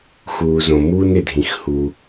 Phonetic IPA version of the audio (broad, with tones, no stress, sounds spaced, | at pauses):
x uː˩ z õ˩ m uː˥ n ɪ˩ dʱ ĩ˩ x h u˩